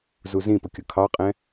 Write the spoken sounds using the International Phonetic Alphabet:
z u z ĩ p ʊ kʲ ʊ kʰ ɑ qʼ ɛ̃

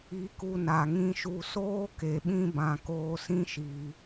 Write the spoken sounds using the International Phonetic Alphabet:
i˧ k u˧ n a˨ ŋ ĩ˧ ʃ u˧ s oː˦ k e˨ ɓ ĩ˧ b ã˨ k oː˧ s ĩ˦ ʃ iː˧

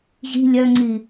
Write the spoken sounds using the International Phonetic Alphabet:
ʑ i̤ lʲ œ ŋ͡ǀ i

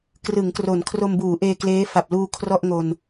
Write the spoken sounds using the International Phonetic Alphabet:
k r ɯ˩˦ ŋ k r o˩˦ n kʰ r o˧ m b uː˩˦ ʔ eː˧ k l eː˦˥ f a˨˩ p̚ l uː˧ kʰ r ɔ˥˩ ʔ ŋ o˧ n

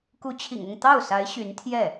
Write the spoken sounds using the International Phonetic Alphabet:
k u˧˥ t͡ɕʰ ḭ˨˩ ŋ ʊ˥˧ ŋ t̪ ɑ˥˩ ʊ̯ s a˧˥ ɪ̯ ɕ y˧˥ n t̪ʰ j ɛ˥˩

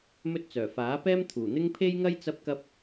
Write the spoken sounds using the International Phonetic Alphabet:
m ɵ˥ t̚ t͡s œː˨˩ f aː˨˥ p ɛː˥ m t̪ʰ uː˨˩ n̪ ɪ˥ ŋ pʰ e˥ j ŋ ɐ˥ j t͡s ɐ˥ p̚ k ɐ˥ p̚

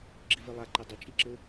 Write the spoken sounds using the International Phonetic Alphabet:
ɡ͡ǁ i v e lˠ a ǃ ɘ dˤ ɨ t͡ʃʼ i ǁ ɘ

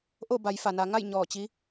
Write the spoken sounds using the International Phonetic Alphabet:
ʔ o˥˨ b a˩˧ j f a˩ n a˩˧ ŋ a˥˨ j ɲ ɔː˧˩ t͡ɕ i˧˥

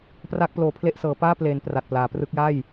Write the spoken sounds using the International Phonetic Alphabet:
p r a˥˩ k̚ p l oː˧ pʰ l e˥˩ ʔ s ɤː˩˦ p aː˥˩ p l eː˩˦ n p r a˨˩ t̚ p l aː˩˦ p r ɯ˦˥ k̚ j a˥˩ j

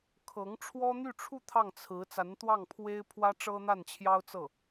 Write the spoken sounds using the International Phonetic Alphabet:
kʰ ɤ˧˥ ŋ ʈ͡ʂʰ w ɔ˥ n̪ y˥˧ ʈ͡ʂʰ u˥˧ t̪ʰ ɑ˥˩ ŋ t͡sʰ ɹ̩˧˥ t͡s a˧˥ n t̪ w ɑ˥˩ ŋ pʰ w e˥ ɪ̯ pʰ w ä˥ ʈ͡ʂ ɤ˥ n̪ a˥˩ n t͡ɕʰ j ɑ˥ ʊ̯ t͡s ɤ˥˩

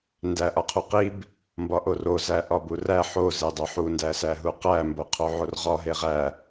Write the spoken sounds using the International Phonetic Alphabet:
n d æ ʔ ɒ qʰ u q i b | m b ɒ ʔ o r o z æ ʔ ɒ b u r æ ħ o z e dˤ o ħ u n d æ s æ ɦ u q æ m b o qʰ o ʕ o r ʁ ɒ ɦ e ʁ æ

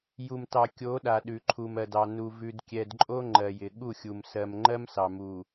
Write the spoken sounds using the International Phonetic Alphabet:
j u˨ m t ɑ˨ kʲ o˨˦ ɗ a˨ ɗ ʉ˨ ǃʰ u˨ m ɜ˨ d ɑ˨ n u˨ v ʉ˨ d kʲ ɛ˨ d ǃʼ o˦ ŋ͡ǃ ɜ˨ j ɪ˨ ɠ u˦˨ xʲ u˨ m s ɜ˨ m ŋ͡ǃ ɜ˦ m s ɑ˨ m u˨

